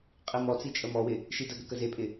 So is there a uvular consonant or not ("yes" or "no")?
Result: yes